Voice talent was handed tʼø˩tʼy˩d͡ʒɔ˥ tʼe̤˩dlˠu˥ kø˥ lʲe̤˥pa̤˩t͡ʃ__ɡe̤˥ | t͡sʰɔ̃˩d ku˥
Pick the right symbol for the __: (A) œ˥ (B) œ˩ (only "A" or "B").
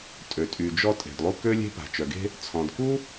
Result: B